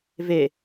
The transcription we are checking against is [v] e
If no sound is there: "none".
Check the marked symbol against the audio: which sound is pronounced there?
v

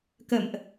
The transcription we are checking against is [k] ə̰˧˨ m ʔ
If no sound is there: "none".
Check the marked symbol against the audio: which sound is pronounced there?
k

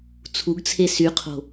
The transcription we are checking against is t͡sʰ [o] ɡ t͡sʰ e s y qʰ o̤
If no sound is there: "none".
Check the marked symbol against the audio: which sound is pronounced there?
u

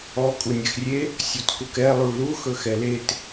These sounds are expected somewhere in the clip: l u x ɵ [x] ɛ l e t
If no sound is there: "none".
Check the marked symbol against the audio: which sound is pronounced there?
x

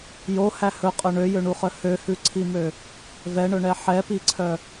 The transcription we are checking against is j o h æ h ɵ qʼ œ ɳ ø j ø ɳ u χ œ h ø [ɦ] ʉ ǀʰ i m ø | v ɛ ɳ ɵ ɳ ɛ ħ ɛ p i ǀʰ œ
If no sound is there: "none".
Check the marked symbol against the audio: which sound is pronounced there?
h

